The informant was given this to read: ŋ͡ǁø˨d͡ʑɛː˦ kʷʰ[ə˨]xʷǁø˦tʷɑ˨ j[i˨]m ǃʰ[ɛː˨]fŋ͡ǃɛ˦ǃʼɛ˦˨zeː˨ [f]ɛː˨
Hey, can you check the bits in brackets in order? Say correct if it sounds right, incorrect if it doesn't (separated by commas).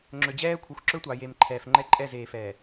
incorrect, incorrect, correct, correct